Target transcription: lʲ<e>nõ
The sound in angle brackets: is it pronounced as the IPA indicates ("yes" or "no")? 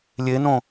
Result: yes